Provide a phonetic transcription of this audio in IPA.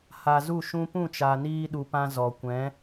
h a˨ z u˦˨ ʃ ũ˦ p ũ˦˨ t͡ʃ aː˨ n iː˧ ɗ u˨ p ã˧ z ɔ˨ kʷ ɛ̃˨˦

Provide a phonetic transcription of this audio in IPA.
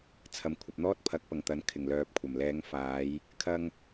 t͡sʰ ɐ˨˩ m kʷʰ ɐ˨ p̚ n̪ ɔː˥ t̚ pʰ ɐ˨˥ k̚ p ɐ˨˩ ŋ t̪ ɐ˨˥ n kʰ ɪ˨˩ ŋ l œː˨ p̚ kʷʰ ɐ˨˩ m l ɛː˨˧ ŋ f aː˨˧ j | kʰ ɐ˧ ŋ

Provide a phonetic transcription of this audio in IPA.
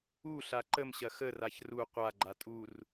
u ɬ a ǃ ə m ɕ ɐ x ə r a ç r u qʷ a ɡ͡ǃ a tʼ u r

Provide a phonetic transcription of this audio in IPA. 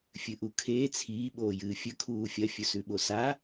fʲ ɨ ʔ u kʰ eː t͡sʰ iː ɓ oː j ɨː fʲ ɵ kʰ uː fʲ ɐ fʲ ɵ s ʉ ɓ o s a

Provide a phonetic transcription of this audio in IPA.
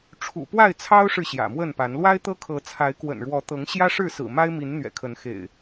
ʈ͡ʂʰ ṵ˨˩ p w a˥˨ ɪ̯ t͡sʰ ɑ˦ ʊ̯ ʂ ɻ̩˨ ɕ j ä̰˨˩ m w ə˥˨ n p a˨˦ n l w a˦ ɪ̯ t̪ ɤ˦ kʰ ɤ˨˦ t͡sʰ a˨˦ ɪ̯ k w ə̰˨˩ n ɻ w ɔ˨˦ t̪ ɤ˨˦ ŋ ɕ j ä˦ ʂ ɻ̩˥˨ s ɹ̩˨˩ m a˦ ɪ̯ m i˨˦ n n̪ ɥ ɛ̰˨˩ kʰ ə˨˦ n x ḛ˨˩ ɪ̯

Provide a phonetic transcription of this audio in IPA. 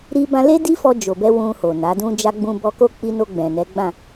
ɾ i˧ b ã˧ l e˦ d i˦ f ɔ˧ d͡ʒ o˨ b ɛ˧ w ũ˧ h o˨ n a˨˦ d ũ˦ d͡ʒ a˦ ɡ͡b ũ˦ b ɔ˧ k o˦ k͡p i˧ n o˧ ɡ͡b ɛ̃˨ n ɛ˨˦ ɡ͡b ã˦˨

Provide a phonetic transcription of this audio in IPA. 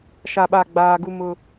ʃ a˨ ɓ a˨ ɡ͡b aː˦ ɡ u˦ m ʊ˦

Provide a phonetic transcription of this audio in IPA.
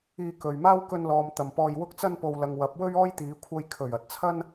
iː˧ k ɵ˨ ɥ m aː˥ w k ɵ˧ n l ɔː˨ m t̪ ɐ˨ m p ɔː˧ j w ʊ˥ k̚ t͡s ɐ˥ n p o˨ w l ɐ˨ ŋ w ɐ˨˥ p̚ w ɵ˥ ɥ ɔː˥ j t̪ iː˨˧ kʷʰ ɐ˧ j kʰ ɵ˨˩ ɥ ɐ˨ t̚ t͡sʰ ɐ˥ n

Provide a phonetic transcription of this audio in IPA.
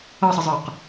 ʌ sˤ ə zˤ ə˞ q

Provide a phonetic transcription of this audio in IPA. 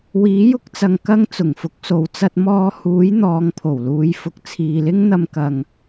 w iː˨˥ j ʊ˧ k̚ t͡s ɐ˨ ŋ k ɐ˥ ŋ t͡s ʊ˨˩ ŋ f ʊ˨˥ k̚ s o˨˧ w t͡s ɐ˧ t̚ m ɔː˧ h uː˨˥ j n̪ ɔː˨˧ ŋ pʰ o˨˩ w l uː˨˧ j f ʊ˨ k̚ t͡sʰ iː˨ l ɪ˥ ŋ n̪ ɐ˧ m k ɐ˧ ŋ

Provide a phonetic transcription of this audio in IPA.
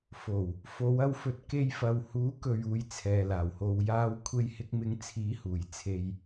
f o˨˩ w | f o˨˧ w ɐ˧ w f ɵ˨˥ t̚ k e˧ j f ɐ˨ w h uː˨˥ k ɵ˨ ɥ uː˧ j t͡sʰ ɛː˨ l aː˨˩ w h o˧ w j aː˧ w kʷʰ e˧ j h ɪ˧ k̚ m ɪ˨˥ ŋ t͡sʰ iː˨˥ h uː˨˩ j t͡sʰ e˧ j

